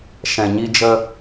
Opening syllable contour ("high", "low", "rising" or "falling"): low